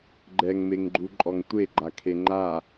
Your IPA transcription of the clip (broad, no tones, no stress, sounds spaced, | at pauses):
ɡ͡ǃ ɛ ŋ m e ŋ ɡ͡ǃ u ǃʼ ɔ ŋ tʷ e ɡ͡ǃ a kʰ e ŋ͡ǃ a